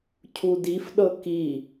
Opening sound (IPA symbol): cʰ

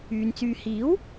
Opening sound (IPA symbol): yː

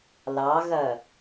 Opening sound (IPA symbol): l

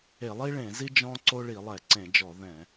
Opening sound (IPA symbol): e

